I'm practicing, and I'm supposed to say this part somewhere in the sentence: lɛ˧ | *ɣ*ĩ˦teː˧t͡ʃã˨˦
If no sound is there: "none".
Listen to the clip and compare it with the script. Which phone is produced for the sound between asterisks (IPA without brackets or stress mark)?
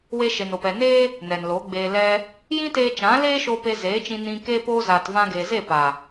j